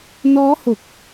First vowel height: mid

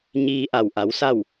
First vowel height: high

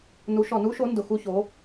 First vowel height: high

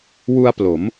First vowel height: high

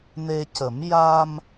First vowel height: mid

